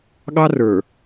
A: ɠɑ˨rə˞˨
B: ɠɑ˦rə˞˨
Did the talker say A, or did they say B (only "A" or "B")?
B